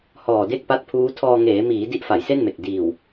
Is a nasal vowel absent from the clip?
yes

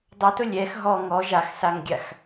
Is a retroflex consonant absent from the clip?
yes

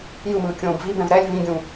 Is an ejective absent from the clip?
yes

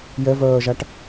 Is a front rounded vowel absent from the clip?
no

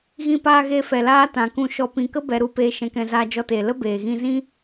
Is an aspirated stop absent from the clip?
yes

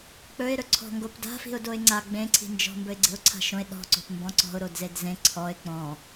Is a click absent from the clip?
no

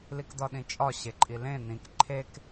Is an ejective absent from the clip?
no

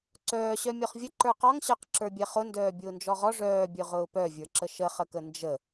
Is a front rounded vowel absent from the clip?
no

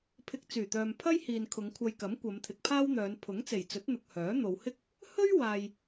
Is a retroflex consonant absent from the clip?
yes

